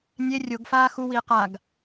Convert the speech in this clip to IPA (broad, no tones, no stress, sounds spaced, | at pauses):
nʲ e rʲ o ɡ f aː x u w iː q a ɡ